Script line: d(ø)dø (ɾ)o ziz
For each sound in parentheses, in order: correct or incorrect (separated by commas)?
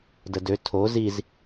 incorrect, incorrect